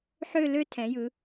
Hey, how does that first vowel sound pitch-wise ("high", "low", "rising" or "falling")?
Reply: falling